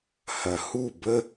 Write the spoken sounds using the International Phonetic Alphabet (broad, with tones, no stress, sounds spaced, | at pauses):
h ɐ˨ h u˦˨ b ə˦